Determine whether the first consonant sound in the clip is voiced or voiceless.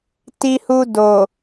voiceless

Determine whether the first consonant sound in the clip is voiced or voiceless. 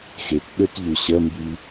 voiceless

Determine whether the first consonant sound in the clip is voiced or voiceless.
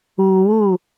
voiced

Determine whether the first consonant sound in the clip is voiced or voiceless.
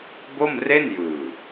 voiced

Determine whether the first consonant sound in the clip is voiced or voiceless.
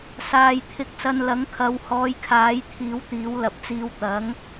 voiceless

